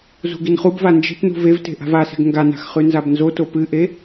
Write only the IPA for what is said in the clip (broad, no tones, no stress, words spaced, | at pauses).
zṳɡinχubva nd͡ʒe̤tnṳ vevte̤ ʔa̤vase̤ɡ ŋɡana̤x χʉnzabnzoto pɨʔe